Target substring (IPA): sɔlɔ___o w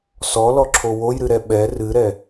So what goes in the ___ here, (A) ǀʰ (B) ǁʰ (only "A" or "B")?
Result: B